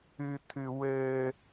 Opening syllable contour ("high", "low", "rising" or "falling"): high